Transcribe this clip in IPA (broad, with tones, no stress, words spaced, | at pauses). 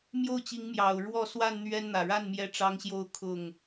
mjo˥˨ʊ̯t͡ɕi˨˦ŋmjɑ˨˩ʊ̯ ɻwɔ˥˨ swa˥˨n n̪ɥɛ˦nn̪ä˨˩ ɻa˥˨n mjɛ˥˨ʈ͡ʂɑ˦ŋɕjo˥˨ʊ̯ kʰʊ˥˨ŋ